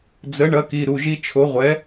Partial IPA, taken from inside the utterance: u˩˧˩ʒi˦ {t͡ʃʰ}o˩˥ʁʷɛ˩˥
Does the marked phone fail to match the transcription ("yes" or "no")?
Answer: no